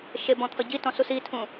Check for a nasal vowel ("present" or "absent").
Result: present